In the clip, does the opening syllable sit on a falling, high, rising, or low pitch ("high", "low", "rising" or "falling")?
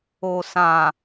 low